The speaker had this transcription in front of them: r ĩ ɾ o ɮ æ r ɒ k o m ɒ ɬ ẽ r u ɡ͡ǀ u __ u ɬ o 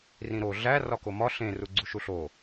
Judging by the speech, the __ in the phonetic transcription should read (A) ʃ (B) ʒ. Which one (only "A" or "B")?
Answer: A